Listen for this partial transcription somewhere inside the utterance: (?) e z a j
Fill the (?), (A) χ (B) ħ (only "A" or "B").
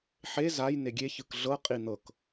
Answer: B